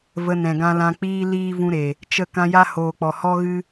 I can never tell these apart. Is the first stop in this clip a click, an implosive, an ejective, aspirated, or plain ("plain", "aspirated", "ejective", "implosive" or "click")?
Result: plain